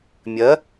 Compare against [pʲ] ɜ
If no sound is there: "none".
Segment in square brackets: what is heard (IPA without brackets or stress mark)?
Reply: mʲ